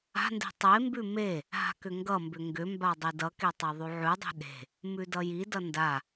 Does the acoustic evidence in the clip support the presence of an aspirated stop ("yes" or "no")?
no